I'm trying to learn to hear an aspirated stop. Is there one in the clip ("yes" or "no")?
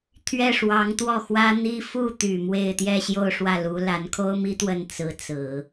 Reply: yes